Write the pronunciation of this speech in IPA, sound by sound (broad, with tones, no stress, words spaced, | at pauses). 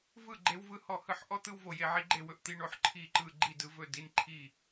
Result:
vɯ˥˨ ɡ͡ǃe˦wvɯ˥˨ hɔ˥˨hɯ˥˨ħ ʔɔ˦t̪ɯ˦w vo˦je˦ ʕi˦ɡ͡ǃe˥˨wɵ˦ʔ t̪i˦ ɳo˥˨ħ ǃʰi˥˨ǃɯ˥˨ ɡ͡ǃi˥˨dɯ˦vɵ˥˨ di˦nǃʰi˥˨